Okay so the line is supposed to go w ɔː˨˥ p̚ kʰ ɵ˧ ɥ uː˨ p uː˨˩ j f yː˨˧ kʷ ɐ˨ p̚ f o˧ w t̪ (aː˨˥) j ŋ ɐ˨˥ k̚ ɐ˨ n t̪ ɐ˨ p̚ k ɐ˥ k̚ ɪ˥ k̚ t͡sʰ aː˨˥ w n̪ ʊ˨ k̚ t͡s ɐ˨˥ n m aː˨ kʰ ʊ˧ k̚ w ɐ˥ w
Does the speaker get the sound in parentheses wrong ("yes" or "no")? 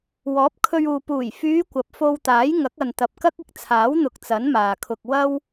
no